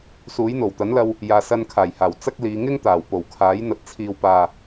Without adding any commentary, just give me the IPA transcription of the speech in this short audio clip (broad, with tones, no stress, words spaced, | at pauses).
suː˨˥jn̪o˨˩w t̪ɐ˨˥nlɐ˧w | jaː˨sɐ˧nkʰaː˨˩jhaː˨˩w t͡sɐ˥k̚liː˨˧ ŋɪ˥ŋt̪aː˨˩wpo˨˩w kʰaː˨˥jn̪ɐ˨t̚ t͡sʰiː˨wpaː˨